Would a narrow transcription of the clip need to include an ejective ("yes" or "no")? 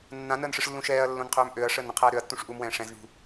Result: no